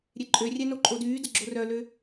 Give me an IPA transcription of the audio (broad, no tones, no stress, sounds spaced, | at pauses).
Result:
ɾʲ e ǃʼ ø rʲ ɛ n o ǃʼ o d yː d ə ɡ͡ǁ o r œ l ø